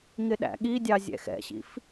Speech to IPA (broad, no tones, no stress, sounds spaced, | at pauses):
ŋ ɪ ɗ æ̰ ɠ i dʲ ɑ zʲ ɛ̰ x ɛ̰ ɕ ḭ f